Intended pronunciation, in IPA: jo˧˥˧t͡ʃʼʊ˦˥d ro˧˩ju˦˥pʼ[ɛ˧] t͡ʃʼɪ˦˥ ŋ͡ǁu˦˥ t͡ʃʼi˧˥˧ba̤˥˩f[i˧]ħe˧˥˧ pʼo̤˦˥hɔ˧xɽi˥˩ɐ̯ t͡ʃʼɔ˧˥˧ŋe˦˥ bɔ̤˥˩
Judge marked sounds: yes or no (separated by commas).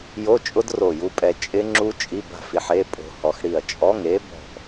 yes, yes